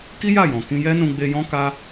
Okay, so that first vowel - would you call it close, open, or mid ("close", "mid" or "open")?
close